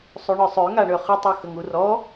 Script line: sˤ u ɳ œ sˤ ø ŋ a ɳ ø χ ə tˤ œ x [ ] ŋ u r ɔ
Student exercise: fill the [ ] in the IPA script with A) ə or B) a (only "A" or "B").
A